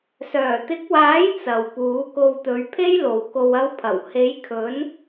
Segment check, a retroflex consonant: absent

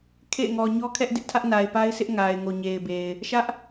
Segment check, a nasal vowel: absent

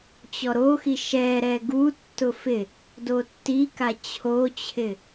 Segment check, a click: absent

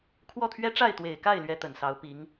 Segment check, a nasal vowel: absent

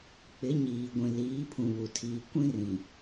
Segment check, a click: absent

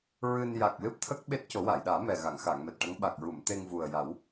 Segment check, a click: absent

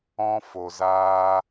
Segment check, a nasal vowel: present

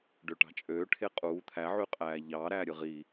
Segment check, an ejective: present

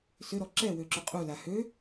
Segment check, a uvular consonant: present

